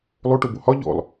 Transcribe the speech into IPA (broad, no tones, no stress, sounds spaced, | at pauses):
lˠ o ʈ o b o h ɒ ʎ ɔ̰ lˠ